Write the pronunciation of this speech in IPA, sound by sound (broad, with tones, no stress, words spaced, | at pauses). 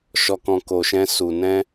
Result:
ʃɔ˨kɔ̃˨ ko˨ʃɛ̃˧su˨ nɛ̃˧